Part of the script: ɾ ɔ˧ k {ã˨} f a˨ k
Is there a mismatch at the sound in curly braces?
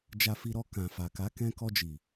no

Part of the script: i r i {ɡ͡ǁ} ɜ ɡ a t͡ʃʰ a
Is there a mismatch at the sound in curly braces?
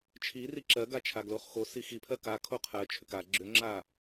yes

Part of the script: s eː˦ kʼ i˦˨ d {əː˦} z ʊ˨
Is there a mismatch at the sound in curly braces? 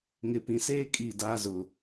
yes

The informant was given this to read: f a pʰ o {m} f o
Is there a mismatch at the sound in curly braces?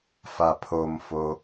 no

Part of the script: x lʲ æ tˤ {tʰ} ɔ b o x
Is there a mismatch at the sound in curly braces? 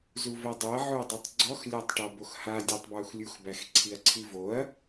yes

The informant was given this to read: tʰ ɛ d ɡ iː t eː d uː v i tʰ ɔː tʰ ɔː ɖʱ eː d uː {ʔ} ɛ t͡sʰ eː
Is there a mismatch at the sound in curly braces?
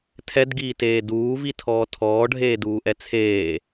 no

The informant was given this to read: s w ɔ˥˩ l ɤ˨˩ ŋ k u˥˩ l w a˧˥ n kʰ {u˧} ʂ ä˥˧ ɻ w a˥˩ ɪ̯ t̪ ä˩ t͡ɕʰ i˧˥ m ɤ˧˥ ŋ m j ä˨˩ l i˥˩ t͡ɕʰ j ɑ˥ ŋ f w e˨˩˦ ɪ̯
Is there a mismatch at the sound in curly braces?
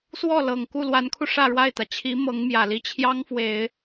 no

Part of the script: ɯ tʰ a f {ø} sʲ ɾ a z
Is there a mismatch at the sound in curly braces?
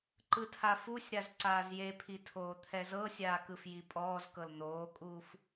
yes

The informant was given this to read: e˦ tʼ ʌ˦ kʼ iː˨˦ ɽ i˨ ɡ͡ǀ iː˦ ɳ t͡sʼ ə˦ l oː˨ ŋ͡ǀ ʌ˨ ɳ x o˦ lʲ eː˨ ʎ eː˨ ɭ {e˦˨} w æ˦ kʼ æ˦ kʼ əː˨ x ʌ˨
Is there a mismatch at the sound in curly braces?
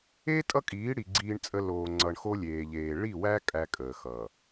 yes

